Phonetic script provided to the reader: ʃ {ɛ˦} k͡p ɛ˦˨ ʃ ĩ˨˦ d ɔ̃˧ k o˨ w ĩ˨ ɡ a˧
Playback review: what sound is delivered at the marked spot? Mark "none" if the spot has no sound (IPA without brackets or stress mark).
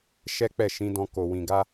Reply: ɛ˦